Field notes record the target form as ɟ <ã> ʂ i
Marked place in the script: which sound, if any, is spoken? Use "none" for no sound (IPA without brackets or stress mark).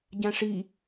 ã